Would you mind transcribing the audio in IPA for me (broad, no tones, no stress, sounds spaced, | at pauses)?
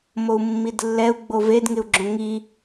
m o u̯ mː i d lː ɛ u̯ ɡ͡b o v e d ŋ ɪ u̯ ɡ͡ǁ õ ŋ i